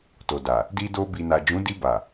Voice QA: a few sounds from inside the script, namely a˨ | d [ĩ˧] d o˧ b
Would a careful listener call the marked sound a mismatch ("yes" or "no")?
yes